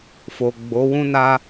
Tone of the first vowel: low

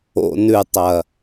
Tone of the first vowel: low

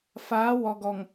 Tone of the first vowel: rising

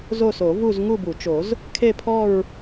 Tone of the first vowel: falling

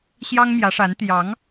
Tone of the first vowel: high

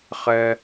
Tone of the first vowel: high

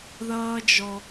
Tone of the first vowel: high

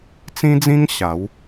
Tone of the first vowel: high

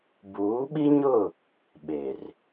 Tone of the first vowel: rising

